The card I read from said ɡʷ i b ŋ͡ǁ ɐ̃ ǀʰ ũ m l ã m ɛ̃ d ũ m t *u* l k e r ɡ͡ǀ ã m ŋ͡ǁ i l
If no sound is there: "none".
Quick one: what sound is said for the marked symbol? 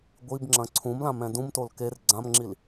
o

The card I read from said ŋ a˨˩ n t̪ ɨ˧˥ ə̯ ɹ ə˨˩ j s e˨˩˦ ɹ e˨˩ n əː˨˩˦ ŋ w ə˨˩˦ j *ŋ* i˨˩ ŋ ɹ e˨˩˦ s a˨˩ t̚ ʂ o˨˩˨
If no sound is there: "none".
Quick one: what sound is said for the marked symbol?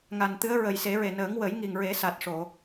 ŋ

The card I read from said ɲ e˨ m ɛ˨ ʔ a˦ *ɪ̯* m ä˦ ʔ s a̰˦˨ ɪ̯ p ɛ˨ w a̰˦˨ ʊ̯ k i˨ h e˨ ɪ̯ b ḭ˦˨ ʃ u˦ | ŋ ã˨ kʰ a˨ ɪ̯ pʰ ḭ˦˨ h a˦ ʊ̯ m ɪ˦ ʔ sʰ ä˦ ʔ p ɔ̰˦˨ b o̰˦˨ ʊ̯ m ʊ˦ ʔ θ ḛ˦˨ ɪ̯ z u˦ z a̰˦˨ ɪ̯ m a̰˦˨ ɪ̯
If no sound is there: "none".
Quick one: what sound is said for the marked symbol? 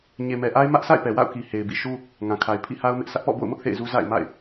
ɪ̯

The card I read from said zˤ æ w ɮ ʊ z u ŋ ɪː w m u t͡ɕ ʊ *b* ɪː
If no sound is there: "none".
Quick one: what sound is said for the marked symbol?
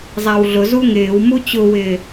w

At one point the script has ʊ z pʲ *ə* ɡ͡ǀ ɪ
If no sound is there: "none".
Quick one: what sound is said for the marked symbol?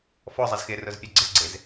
ɛ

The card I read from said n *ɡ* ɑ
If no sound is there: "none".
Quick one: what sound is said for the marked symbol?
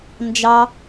d͡ʒ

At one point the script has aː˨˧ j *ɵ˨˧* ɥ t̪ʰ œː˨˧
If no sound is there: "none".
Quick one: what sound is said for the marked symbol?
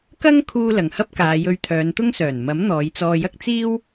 ɵ˧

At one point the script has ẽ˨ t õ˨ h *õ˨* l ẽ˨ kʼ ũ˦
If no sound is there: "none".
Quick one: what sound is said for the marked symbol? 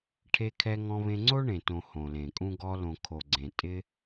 õ˨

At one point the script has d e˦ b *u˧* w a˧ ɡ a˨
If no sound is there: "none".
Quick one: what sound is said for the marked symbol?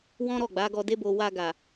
o˧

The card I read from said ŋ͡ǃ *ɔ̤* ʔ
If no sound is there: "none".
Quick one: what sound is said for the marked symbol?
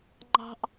ɑ̤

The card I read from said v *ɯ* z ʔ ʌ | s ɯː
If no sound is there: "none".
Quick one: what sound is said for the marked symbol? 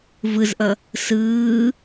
ɯ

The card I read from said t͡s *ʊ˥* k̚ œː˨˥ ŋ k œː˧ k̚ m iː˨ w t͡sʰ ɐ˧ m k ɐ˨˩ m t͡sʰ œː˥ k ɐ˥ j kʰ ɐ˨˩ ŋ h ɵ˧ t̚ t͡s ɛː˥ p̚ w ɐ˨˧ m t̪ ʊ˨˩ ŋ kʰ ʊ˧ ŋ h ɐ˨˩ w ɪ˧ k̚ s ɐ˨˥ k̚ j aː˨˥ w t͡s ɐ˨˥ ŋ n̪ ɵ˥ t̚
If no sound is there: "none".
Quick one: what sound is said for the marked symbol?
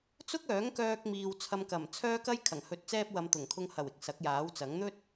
ʊ˥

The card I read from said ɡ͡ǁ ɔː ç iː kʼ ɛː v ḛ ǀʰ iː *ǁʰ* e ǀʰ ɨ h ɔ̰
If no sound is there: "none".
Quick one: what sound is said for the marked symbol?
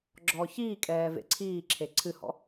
ǁʰ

